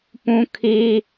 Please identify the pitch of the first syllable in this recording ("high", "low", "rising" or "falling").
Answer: high